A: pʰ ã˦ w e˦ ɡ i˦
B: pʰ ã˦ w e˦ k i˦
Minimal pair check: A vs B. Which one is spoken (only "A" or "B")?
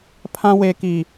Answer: B